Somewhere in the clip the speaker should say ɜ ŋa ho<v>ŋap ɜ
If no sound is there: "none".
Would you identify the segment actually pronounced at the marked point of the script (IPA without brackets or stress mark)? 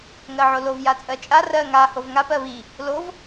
v